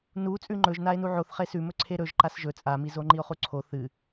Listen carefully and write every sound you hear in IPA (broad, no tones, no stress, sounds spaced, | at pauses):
n u t͡sʼ ʉ ŋ͡ǃ ɵ ʒ n a e̯ n u ʕ o θ χ e s ʉ m ɵ ǀʰ e ɾ ɵ ʒ ǃ a s ʒ ɵ t͡sʼ a m i z o ŋ͡ǃ i o̯ χ u ǀʰ o θ ɨ